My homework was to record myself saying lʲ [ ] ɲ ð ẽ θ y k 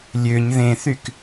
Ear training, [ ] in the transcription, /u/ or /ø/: ø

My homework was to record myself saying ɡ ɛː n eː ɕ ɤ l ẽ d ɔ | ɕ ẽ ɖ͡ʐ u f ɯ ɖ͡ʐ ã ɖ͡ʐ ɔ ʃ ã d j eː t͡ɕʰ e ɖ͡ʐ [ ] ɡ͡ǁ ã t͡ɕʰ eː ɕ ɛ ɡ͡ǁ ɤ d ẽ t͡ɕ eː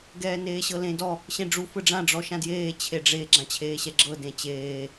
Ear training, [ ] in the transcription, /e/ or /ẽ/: e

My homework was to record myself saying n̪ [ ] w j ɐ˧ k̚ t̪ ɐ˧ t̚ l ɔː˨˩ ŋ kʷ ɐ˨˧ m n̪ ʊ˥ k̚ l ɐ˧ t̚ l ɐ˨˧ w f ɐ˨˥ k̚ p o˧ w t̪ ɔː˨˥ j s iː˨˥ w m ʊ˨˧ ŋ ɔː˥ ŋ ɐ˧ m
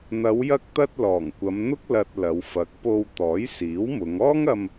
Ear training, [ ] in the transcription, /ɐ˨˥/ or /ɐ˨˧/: ɐ˨˧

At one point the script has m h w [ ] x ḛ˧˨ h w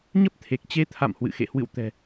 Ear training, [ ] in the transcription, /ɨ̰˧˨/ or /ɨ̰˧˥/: ɨ̰˧˨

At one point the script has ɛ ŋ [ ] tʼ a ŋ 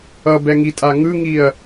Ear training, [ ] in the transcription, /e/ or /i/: i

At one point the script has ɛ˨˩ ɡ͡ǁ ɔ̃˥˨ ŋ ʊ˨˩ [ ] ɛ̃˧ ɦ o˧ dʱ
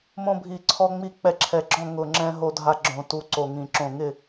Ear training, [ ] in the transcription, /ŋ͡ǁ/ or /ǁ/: ŋ͡ǁ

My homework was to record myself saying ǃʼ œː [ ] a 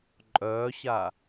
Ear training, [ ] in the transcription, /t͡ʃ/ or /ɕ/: ɕ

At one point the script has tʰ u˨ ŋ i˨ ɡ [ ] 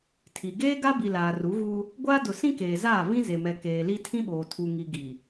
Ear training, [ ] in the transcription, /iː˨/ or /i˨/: i˨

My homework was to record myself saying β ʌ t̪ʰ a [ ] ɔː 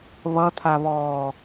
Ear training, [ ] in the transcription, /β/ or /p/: β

